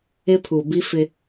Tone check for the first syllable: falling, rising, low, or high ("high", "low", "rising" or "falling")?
high